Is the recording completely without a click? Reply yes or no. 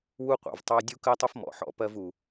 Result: yes